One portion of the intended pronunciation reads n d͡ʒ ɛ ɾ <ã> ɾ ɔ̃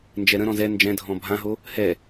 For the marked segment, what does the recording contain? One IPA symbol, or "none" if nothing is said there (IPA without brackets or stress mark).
ə̃